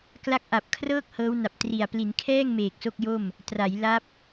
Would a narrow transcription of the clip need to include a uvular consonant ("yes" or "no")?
no